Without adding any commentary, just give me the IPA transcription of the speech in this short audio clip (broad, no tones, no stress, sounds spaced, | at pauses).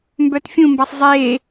m b œ t fʲ ũ m b a sˤ zˤ eː